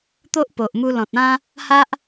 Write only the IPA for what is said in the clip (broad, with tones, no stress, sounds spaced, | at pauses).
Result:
t̪ o˦ ʔ p o˨ ʔ m u˧ l ɔ̃˨ t̚ ã˦ | h a˦ ʔ